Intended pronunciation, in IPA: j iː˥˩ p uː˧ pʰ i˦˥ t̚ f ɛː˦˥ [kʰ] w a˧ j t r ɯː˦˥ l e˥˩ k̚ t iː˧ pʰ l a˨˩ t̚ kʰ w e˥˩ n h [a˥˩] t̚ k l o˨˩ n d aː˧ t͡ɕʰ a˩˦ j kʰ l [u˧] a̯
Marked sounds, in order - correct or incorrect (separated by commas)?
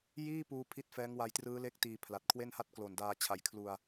incorrect, correct, incorrect